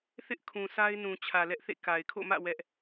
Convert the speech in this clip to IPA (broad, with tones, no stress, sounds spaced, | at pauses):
θ ɪ˦ ʔ kʰ ũ˨ sʰ a˦ ɪ̯ n ũ˨ t͡ɕʰ ä˨ l ɛ˦ ʔ θ ḛ˦˨ k a˨ ɪ̯ kʰ o̰˦˨ m ä̰˦˨ w ɛ˦ ʔ